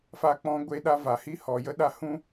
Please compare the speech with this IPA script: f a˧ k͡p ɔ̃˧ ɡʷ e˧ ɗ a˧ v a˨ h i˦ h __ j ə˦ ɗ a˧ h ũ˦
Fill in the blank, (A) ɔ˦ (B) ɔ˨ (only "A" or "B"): B